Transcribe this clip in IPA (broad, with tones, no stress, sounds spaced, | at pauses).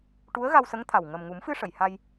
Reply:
ʈ u˧˥ ə̯ ɣ a˧ w s ə˧˥ ŋ t̪ʰ a˨˩ w ŋ ə˨˩ m ŋ u˨˩˦ m f ɨ˧ ʂ ə˨˩˨ j h a˧ j